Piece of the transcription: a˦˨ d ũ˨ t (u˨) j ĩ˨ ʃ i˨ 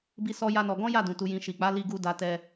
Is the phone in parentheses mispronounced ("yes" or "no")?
no